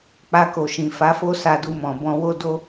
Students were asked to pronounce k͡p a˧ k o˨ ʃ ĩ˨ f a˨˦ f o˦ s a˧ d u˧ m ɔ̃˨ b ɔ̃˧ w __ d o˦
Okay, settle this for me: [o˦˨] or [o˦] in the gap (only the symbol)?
o˦